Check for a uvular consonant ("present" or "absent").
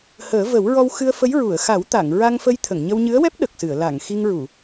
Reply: absent